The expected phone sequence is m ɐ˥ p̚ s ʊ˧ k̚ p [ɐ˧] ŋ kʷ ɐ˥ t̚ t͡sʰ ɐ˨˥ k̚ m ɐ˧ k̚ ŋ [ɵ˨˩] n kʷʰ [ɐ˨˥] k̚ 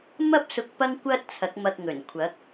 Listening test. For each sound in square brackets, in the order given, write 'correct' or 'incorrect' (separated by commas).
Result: incorrect, correct, correct